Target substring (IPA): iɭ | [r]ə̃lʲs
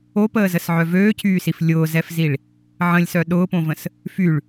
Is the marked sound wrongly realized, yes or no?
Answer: yes